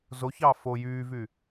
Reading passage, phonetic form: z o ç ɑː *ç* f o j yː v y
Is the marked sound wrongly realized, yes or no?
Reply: yes